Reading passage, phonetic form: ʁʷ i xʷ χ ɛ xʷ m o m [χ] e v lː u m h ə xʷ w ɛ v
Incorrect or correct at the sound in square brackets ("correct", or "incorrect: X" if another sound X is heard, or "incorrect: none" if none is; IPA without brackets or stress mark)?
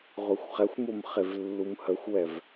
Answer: correct